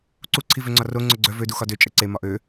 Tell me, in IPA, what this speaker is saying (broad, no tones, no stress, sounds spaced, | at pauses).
ǀ u ǀʰ i v ø ŋ͡ǀ ɒ r o ŋ͡ǀ œ ɡ͡ǀ œ v ø d u x ɒ d ø t͡ʃʼ ə ǀ e m ɒ ʔ ø